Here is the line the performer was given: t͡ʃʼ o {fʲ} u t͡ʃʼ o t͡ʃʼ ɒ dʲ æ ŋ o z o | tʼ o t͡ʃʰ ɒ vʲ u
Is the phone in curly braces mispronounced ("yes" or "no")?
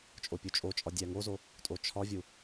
yes